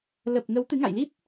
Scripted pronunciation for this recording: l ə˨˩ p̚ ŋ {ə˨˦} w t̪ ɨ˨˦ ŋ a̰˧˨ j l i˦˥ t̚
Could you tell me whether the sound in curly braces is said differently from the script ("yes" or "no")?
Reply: no